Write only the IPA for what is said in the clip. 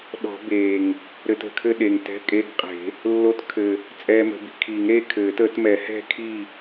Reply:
ɗ ɔ̤˨˩˦ b eː˨˩ ŋ | ɾ ɘ˧ t ə̤˨˩ kʰ ɘ˥˨ ɗ e˨˩ ŋ t ɛ̤˧˥˧ kʼ e˧˥˧ ɡ qʼ e̤˨˩˦ | lː o˧˥ t kʰ ɘ˨˩ | t͡sʼ ɛː˧ m ə̤˨˩˦ b i̤˨˩ kʰ i˨˩˦ ŋ ɾ e˥˨ kʰ ɘː˨˩˦ t ə˨˩˦ t m ɛ˨˩˦ h ɛ̤˥˨ kʰ i˥˨

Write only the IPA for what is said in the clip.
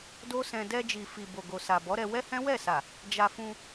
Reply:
d o˦ s ɛ̃˧ d ɛ˧ d͡ʒ i˨ f i˨ b o˨ ɡ o˨ s a˨ b ɔ˨˦ ɾ ɛ˧ w ɛ˦ h ɛ̃˦ w ɛ˦˨ s a˨ | d͡ʒ a˧ f ũ˧

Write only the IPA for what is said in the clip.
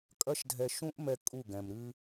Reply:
kʼ ɐ˦ ʃ dʱ ɛ˧ ʃ ũ˦ ʔ m ɛ˧ kʼ u˦˨ ɡ ɛ̃˨ m ɾ ɨ˦

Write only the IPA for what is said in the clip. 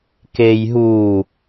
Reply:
k e j ɦ u

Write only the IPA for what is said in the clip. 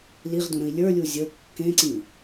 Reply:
l i ʁ d ũ ɾ ə̃ i̯ lʲ ə˞ lʲ u zʲ ə kː ẽ ǀ ĩ

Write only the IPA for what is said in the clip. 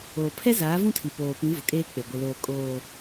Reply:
oː˨ pʰ ɛ˦ z aː˨˦ v ũ˦ tʰ i˨ p oː˨ p ĩ˨˦ v ʊ˨ kʼ eː˦ k͡p e˨ ɡʷ ɪ˨ l oː˨ kʼ oː˨

